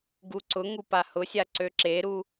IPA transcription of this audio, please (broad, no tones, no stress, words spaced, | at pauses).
ɡuǀʊŋu pahʊsʲa ǀøǁeɾu